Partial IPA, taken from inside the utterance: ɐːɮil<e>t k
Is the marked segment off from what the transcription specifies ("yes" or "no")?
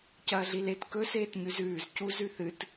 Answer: no